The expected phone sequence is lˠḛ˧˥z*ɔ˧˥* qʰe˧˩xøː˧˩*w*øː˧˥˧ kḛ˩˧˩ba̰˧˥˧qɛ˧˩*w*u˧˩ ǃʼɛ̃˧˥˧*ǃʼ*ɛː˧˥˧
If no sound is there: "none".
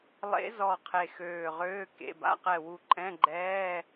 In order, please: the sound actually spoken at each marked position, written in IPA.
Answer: ɔ˧˩, ʁ, w, ɡ͡ǃ

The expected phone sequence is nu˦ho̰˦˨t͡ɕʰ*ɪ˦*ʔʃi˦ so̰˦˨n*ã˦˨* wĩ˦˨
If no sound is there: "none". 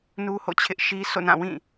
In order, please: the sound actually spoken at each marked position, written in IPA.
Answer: ɪ˦, ã˦˨

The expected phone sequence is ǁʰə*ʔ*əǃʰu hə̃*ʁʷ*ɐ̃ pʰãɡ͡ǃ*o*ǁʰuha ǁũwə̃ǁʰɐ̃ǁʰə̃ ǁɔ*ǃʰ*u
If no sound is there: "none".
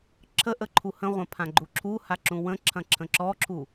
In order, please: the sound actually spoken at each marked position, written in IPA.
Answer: ʔ, ʁʷ, u, ǁʰ

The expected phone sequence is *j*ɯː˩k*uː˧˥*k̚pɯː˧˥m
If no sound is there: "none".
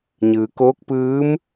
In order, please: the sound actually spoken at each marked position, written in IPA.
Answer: ɲ, oː˧˥

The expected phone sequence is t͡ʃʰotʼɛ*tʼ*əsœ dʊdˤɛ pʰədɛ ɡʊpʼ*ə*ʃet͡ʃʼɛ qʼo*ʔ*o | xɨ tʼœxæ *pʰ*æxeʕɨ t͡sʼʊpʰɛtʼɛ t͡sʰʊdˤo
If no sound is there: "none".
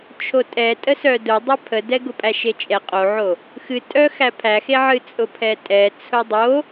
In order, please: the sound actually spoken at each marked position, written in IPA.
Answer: tʼ, æ, ʕ, pʰ

